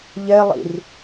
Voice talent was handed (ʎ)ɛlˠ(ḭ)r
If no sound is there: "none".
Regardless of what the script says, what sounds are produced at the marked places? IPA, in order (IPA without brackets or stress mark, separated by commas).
ʎ, ḭ